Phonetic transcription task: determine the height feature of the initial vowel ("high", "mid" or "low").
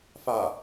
low